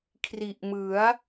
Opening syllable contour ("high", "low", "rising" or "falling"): low